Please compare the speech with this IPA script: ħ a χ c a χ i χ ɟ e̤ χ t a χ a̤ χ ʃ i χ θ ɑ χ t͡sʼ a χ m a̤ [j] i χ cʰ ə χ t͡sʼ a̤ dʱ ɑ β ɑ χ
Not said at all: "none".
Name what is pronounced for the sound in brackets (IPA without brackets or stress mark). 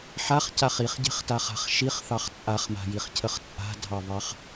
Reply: j